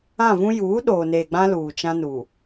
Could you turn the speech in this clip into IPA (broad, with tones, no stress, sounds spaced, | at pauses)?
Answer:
ã˦˨ v ũ˦ j uː˨˦ ɗ oː˨ n eː˨ ɡ͡b ã˦ l uː˨ t͡ʃ ã˦ n u˨